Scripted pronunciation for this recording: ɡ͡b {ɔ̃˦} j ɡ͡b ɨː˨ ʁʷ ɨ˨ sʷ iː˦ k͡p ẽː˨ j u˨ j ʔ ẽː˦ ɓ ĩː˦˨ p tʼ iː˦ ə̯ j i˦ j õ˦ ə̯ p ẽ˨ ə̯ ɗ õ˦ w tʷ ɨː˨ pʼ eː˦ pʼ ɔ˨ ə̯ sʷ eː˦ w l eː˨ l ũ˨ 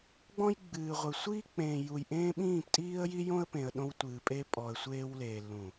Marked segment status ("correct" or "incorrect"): correct